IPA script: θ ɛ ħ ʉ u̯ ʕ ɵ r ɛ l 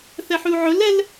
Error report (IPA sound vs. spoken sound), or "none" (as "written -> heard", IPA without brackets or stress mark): r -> l